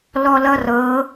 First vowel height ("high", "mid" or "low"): mid